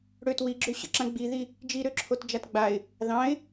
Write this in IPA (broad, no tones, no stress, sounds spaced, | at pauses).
ɽ ø t w i ɡ͡ǁ ø ɕ ə̰ ǁ ã ɡ͡b i ð i | d͡ʒ i ɾ ø ǁʰ o t d͡ʒ a t ɡ͡b a ɪ̯ | ð ɑ̃ ɪ̯